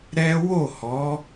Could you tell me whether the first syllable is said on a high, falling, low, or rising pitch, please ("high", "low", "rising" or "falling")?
high